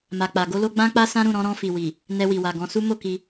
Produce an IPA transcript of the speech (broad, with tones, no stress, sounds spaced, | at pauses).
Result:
m a˨ k͡p a˨ ɡ o˧ l o˧ ɡ͡b ã˦ k͡p a˦ s ã˦ ɾ ũ˦˨ ɾ ɔ̃˨˦ ɾ ɔ̃˧ f i˨ w i˨ | n ɛ˧ w i˨ w a˨ ɡ ɔ̃˨˦ s u˦ m o˦˨ k i˧